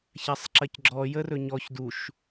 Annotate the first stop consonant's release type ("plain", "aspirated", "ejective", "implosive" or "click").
click